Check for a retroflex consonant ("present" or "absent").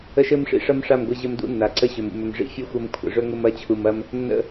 present